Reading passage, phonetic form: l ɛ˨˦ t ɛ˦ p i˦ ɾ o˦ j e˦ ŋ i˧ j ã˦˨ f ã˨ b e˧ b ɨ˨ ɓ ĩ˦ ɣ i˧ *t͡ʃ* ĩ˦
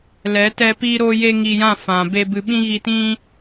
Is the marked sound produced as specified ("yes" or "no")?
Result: no